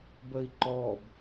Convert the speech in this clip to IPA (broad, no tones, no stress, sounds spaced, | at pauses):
b ə i̯ ǃ ɔ b